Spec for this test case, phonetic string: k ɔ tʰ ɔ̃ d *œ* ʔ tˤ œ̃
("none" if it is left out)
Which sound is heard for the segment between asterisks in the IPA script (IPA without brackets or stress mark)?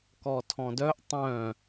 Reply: œ